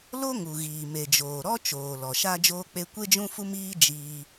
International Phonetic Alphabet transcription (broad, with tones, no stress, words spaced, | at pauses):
lo˦ŋu˨ɣiː˨ me˨d͡ʒoː˨ ɾɔ˦ t͡ʃoː˨lɔ˨ ʃa˦ d͡ʒoː˦k͡pe˦ kʷe˦d͡ʒũ˦fu˦miː˦ d͡ʒiː˦